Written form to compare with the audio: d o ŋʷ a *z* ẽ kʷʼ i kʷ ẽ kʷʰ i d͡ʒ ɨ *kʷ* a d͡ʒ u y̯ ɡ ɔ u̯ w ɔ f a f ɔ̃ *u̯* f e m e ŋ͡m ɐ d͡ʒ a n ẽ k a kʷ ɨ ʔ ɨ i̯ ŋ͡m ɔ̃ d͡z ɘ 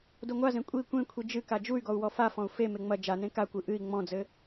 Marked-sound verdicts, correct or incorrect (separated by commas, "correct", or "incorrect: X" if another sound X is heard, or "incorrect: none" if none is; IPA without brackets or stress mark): correct, incorrect: k, correct